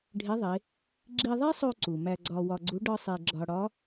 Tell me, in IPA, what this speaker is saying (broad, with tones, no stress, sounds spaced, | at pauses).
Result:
ɖʱ e˧˥ ðˤ e˩˧ | ɡ͡ǁ i˧ ðˤ e˥ sˤ o˧ ǀ u˩ m æ˧ ɡ͡ǀ ɒ˧ w ɒ˧ ɡ͡ǀ u˧˥ ɖ ɒ˥ sˤ e˧ ɡ͡ǁ ɒ˧ ɽ ɒ˧˥